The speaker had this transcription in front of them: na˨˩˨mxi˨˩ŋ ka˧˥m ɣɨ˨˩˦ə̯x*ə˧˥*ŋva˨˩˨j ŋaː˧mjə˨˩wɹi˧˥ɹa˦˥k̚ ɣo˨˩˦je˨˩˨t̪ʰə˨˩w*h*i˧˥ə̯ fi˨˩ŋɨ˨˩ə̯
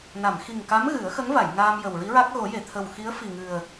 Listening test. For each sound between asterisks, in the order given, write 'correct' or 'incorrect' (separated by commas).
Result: correct, incorrect